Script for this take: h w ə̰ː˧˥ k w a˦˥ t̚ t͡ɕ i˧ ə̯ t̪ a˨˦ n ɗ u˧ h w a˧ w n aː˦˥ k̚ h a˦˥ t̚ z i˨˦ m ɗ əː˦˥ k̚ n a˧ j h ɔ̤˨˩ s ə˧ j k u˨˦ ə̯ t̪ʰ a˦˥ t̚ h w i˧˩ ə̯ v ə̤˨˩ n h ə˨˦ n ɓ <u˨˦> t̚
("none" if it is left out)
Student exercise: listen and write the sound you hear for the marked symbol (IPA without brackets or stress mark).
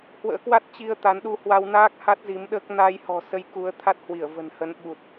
u˨˩